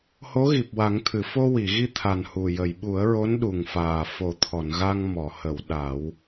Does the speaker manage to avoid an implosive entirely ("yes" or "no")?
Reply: no